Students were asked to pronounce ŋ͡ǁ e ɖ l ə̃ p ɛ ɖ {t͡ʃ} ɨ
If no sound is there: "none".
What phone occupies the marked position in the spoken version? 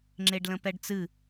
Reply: t͡s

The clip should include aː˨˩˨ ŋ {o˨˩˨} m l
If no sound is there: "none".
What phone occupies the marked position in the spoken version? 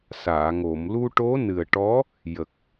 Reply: o˨˩˨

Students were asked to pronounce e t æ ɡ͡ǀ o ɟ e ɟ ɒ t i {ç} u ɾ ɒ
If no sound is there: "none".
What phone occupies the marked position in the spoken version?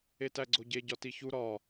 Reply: ç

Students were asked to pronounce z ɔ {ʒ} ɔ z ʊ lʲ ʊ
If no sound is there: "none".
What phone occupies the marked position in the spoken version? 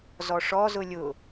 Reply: ʂ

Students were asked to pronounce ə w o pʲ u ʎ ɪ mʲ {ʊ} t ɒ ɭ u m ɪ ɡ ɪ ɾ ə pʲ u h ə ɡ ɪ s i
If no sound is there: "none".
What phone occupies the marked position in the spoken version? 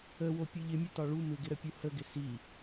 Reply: ʊ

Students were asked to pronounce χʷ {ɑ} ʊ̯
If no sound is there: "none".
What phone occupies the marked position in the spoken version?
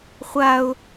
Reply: a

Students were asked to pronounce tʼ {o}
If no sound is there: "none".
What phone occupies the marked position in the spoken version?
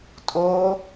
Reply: o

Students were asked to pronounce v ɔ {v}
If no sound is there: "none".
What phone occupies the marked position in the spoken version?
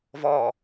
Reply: none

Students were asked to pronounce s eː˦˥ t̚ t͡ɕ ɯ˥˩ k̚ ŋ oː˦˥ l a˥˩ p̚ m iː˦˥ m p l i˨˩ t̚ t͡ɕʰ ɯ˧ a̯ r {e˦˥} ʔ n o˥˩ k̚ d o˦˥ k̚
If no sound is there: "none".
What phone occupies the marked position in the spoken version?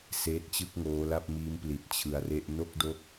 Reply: e˥˩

